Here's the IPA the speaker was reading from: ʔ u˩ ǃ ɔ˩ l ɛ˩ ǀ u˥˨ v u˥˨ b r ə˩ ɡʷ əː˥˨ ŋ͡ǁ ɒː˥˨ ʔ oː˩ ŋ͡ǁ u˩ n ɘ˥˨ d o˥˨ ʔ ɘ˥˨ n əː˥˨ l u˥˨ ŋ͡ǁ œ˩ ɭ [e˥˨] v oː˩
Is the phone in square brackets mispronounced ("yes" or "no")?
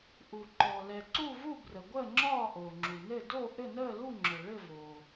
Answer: yes